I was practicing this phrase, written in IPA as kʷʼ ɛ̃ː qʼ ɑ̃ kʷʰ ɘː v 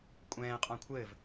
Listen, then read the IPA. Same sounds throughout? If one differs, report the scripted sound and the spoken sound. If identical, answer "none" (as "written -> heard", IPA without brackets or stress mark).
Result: ɑ̃ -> ɔ̃